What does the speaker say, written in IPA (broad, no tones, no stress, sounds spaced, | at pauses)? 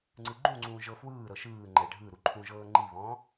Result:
ŋ͡ǀ ɯ ɡ͡ǃ ũ ŋ͡ǀ ũː ʒ ɤ f w ɯː ɾ ɤ ʃ ɯː ŋ͡ǃ ɛ ɖʱ ɯ ɾ u ǃʰ ũ ʒ ɤː ŋ͡ǃ i β ɔ̃ː